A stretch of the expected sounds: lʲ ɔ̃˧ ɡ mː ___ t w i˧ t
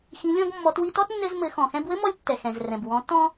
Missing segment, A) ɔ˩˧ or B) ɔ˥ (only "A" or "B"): A